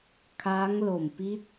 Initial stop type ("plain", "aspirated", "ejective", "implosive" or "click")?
aspirated